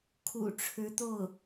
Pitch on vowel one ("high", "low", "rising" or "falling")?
low